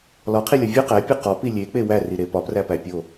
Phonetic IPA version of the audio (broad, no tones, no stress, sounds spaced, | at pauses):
l ɒ qʰ i lʲ ɒ vʲ u q æ pʲ u q ɒ p i lʲ e k͡p e w æ r i ɾ e p ɒ p r æ p æ pʲ o